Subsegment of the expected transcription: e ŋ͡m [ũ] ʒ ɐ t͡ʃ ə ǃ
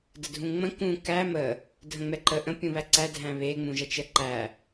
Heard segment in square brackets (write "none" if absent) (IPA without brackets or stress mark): ũ